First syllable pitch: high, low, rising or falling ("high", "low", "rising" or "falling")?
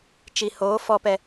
low